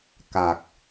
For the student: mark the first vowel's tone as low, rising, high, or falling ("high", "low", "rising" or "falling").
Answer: low